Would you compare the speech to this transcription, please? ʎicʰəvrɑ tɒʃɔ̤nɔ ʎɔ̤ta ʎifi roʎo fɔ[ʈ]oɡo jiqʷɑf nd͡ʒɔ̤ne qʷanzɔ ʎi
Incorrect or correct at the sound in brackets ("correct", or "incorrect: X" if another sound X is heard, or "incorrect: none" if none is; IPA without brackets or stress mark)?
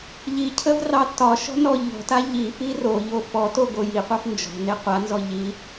incorrect: t